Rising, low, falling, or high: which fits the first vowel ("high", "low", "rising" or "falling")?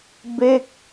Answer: falling